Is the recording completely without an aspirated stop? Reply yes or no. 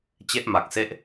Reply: yes